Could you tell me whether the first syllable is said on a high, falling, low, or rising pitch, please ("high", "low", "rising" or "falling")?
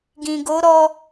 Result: low